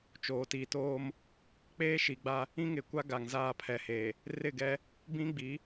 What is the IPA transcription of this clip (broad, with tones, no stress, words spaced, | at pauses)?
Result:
t͡ʃoː˨tiː˨toː˦m | k͡peː˦ ʃi˨ɡ͡ba˦ | ĩ˦ŋɪ˨ kʷa˦ɡa˨ŋ zaː˦˨pʰɛ˨ heː˨ | rɪ˦˨ɡɛ˦ | bĩ˦ɡ͡bi˨˦